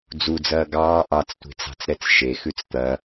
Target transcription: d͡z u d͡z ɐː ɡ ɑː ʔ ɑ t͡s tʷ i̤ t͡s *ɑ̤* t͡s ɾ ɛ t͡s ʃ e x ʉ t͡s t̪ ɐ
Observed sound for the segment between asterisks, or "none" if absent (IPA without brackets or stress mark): ɑ̤